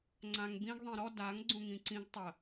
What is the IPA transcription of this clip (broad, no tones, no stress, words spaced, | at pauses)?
ŋ͡ǀãŋbĩɡ ðˤĩɾɔ daŋ ɡ͡ǀũŋĩǀĩɡ tˤə